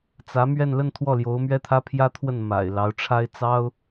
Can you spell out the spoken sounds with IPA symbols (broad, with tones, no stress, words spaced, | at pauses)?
t͡sä˧˥mɥɛ˥˧n lə˥˧n t̪ʰwɔ˥˩ljo˧˥ʊ̯mɥɛ˥ t̪ʰä˥pʰjä˥t̪ʰwə˥˩n ma̰˨˩ɪ̯ lɑ˧˥ʊ̯ʈ͡ʂʰa˥ɪ̯ t͡sɑ˥ʊ̯